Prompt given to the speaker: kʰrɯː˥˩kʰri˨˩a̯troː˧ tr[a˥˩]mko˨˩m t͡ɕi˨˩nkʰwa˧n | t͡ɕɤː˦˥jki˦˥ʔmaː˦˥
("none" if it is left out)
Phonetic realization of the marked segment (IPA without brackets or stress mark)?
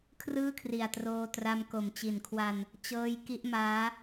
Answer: a˧